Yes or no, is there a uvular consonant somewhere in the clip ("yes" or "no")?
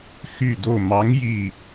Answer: no